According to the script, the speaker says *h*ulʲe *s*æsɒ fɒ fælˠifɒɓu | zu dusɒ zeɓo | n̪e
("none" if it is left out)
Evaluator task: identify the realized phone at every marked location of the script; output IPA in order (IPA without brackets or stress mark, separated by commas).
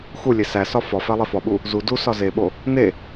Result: x, s